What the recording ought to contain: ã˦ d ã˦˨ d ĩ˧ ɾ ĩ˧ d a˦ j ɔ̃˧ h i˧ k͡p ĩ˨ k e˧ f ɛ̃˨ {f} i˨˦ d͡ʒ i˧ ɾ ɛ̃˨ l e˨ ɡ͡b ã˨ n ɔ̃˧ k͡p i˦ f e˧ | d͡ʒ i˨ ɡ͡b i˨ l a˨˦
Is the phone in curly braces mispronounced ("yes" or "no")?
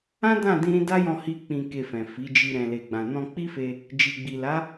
no